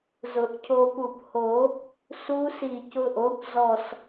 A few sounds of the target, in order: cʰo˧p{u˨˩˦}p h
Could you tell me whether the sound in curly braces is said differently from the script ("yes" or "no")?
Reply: yes